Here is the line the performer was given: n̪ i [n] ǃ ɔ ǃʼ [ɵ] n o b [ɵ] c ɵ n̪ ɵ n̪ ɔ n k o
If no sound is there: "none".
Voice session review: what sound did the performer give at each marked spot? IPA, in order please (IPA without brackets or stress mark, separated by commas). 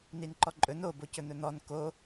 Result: n, ɵ, o